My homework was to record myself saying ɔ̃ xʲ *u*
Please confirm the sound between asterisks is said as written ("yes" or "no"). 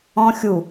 yes